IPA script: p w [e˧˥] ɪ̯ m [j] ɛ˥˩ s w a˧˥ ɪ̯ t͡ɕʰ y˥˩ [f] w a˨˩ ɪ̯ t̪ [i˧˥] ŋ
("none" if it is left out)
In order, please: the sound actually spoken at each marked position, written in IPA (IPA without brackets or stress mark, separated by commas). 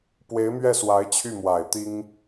e˧˥, ɥ, m, i˥